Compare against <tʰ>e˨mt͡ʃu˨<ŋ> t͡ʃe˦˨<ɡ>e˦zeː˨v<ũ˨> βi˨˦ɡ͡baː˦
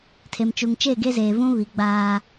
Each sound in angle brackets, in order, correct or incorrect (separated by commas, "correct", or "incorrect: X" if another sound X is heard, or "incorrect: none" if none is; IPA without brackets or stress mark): correct, correct, correct, incorrect: ũ˦